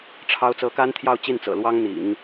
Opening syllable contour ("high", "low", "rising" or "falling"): high